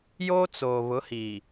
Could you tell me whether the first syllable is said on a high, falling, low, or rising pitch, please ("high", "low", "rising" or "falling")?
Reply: high